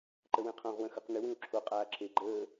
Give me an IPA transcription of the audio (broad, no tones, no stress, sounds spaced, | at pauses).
ǃ ə w ẽ qʰ õ ʁ w ə̃ x ɵ q n ʏ w ĩ u̯ ǁʰ o qʼ aː ǁʰ e ɡ͡ǃ əː